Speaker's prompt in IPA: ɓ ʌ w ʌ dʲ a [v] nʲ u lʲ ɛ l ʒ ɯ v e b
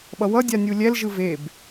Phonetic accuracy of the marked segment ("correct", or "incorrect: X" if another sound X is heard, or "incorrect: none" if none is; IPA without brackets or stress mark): incorrect: none